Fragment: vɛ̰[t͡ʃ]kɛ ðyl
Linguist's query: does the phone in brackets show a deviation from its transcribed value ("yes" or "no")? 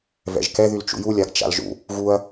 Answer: yes